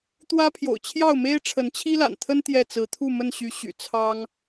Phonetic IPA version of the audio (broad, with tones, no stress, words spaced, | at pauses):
t̪wä˦pʰjo̰˨˩ʊ̯t͡ɕʰjɑ˥˨ʊ̯me˦ɪ̯ ʈ͡ʂʰə˨˦nt͡ɕʰi˦la̰˨˩nt̪ʰə˦n t̪jɛ˥˨t͡sɹ̩˨˦ t̪ʰu˥˨mə˥˨n ɕy˨˦ɕy̰˨˩ t͡sʰɑ˦ŋ